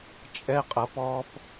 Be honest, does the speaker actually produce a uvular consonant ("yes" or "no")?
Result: yes